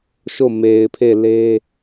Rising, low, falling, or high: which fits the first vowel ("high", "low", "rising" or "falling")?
falling